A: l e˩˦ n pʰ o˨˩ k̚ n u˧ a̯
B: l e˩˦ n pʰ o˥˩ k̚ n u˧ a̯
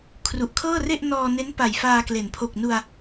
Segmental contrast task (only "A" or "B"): A